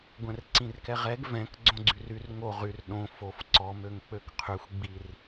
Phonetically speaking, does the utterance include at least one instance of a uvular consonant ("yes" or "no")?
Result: yes